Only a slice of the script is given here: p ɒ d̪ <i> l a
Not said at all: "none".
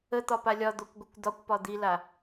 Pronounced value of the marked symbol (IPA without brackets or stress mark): i